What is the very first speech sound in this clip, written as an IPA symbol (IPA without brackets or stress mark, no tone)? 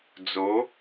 d͡z